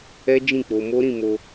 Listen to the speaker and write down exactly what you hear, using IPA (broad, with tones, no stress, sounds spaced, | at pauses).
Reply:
ɛ˦ d͡ʒ ĩ˦˨ k͡p o˧ m o˦ ɾ ĩ˦˨ m o˧